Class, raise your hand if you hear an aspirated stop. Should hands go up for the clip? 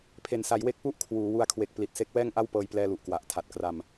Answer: yes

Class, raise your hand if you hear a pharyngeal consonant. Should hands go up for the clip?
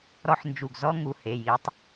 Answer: yes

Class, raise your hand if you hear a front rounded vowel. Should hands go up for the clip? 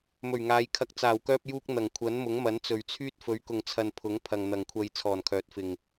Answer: yes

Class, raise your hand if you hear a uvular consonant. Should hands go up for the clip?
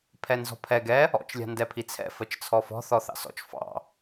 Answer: no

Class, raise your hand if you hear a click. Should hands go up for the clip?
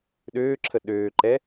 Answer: yes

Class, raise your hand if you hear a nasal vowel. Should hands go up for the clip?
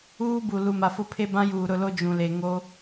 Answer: yes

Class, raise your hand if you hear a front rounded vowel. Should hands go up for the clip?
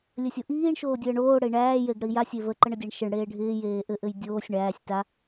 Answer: no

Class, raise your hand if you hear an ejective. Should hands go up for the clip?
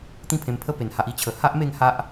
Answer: no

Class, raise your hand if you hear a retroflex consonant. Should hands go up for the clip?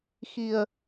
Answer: no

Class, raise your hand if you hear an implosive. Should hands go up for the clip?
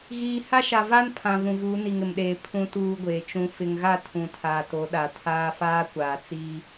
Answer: yes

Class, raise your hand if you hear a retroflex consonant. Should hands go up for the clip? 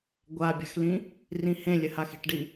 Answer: yes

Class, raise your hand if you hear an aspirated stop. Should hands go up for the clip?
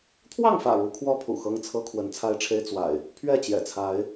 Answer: yes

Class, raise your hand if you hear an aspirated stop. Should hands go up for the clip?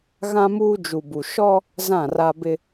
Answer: no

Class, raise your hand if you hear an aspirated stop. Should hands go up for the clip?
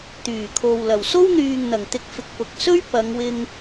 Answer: yes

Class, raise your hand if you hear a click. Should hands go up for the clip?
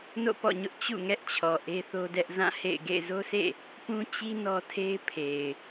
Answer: no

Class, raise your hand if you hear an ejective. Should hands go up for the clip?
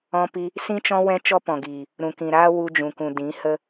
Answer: no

